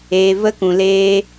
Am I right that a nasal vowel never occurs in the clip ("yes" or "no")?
no